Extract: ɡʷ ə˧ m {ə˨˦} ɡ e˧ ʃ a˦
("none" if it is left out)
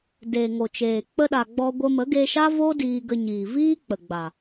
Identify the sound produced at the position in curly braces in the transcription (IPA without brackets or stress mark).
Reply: ə˨˦